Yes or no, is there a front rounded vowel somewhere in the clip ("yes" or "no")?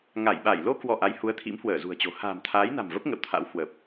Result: no